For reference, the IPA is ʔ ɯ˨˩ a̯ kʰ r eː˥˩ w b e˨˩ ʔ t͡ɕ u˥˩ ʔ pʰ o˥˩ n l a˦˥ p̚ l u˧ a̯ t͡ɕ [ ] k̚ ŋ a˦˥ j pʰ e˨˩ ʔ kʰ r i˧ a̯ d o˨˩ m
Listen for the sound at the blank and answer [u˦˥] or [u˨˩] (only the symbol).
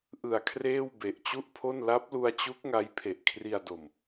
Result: u˦˥